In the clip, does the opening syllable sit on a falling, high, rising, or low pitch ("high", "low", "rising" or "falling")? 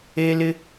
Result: high